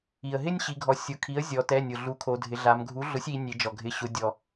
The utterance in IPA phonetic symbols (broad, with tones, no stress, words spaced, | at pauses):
i˩ə̯ɦɪ˦nʲɕi˩˧ɡʱɔ˩˧ sʲʊ˩˧˩kʰi˩˥ə̯zʲɔ˩˧tɛ˩˧˩ nʲʊ˩ ɮu˩˥kʰo˩˧dʱɪ˩˧ɮa˩˧m ɡʱu˩˥ɮʊ˩˥sʲi˩˧ nʲe˩˧d͡ʒɔ˩ɡʱɪ˩˧˩ ɕʊ˩˧dʲɔ˩